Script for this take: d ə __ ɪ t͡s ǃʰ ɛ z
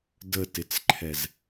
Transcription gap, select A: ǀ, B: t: B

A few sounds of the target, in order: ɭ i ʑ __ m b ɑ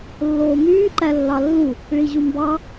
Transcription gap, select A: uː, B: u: B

